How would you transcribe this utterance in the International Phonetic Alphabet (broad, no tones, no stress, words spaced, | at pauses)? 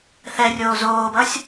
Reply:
θɛrʲoː zoːbʌsʲ